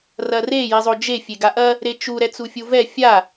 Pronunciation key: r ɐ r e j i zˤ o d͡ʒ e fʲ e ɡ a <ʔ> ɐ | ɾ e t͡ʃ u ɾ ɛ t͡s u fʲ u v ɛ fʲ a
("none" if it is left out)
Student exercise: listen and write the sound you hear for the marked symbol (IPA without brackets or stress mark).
ʔ